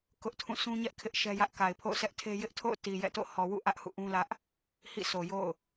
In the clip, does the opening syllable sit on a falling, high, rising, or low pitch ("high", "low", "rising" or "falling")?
high